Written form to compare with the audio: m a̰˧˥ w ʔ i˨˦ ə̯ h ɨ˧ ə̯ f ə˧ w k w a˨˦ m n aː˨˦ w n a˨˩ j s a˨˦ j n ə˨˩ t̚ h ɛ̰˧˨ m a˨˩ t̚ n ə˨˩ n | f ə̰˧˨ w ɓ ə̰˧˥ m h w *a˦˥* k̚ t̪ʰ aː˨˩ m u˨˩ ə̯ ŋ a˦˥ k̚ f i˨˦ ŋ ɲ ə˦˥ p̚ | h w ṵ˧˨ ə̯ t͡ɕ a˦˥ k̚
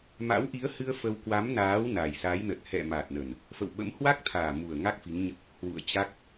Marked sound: correct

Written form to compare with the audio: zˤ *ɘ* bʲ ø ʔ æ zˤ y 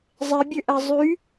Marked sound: incorrect: e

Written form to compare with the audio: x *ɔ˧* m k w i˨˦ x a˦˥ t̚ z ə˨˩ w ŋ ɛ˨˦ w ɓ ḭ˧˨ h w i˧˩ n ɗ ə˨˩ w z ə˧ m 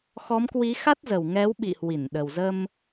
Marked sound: incorrect: ɔ˨˦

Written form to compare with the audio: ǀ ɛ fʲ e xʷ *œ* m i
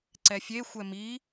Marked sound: incorrect: ɛ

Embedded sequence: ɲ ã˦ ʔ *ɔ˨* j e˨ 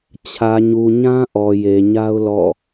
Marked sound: correct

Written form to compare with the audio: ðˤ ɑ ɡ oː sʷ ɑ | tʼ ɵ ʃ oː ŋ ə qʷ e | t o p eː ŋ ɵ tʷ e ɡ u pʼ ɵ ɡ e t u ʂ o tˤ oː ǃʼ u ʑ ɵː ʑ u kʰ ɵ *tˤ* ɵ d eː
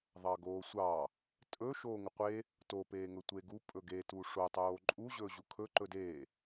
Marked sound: incorrect: ǃ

